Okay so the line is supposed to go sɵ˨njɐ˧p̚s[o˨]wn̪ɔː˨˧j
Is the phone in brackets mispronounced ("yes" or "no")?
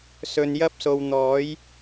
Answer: no